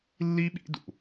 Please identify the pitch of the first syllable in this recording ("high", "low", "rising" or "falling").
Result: high